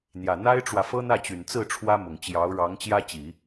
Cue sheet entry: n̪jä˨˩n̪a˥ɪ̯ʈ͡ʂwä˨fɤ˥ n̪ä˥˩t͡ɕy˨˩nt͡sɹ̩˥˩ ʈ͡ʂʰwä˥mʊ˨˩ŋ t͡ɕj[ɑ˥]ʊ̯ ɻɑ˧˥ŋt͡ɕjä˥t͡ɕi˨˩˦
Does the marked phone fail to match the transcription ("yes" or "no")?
yes